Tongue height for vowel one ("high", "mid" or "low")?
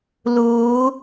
high